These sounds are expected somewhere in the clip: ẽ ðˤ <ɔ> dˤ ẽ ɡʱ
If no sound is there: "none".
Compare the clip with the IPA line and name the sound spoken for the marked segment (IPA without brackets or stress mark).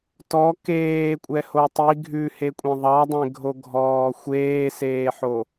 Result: ɑ